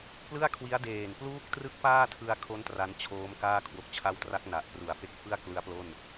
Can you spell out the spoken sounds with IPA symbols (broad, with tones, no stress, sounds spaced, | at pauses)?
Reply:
p l ɯ˥˩ a̯ kʰ w i˦˥ a̯ d eː˨˩ n p l uː˥˩ k̚ t r ɯ˥˩ k̚ p aː˥˩ tʰ ɯ˧ a̯ kʰ o˦˥ n t r a˦˥ n t͡ɕʰ oː˦˥ m k aː˥˩ kʰ w o˨˩ k̚ t͡ɕʰ a˦˥ w t r a˦˥ k̚ n a˨˩ ʔ p r u˨˩ a̯ f e˥˩ k̚ f ɯ˥˩ a̯ k l ɯ˦˥ a̯ p l o˥˩ n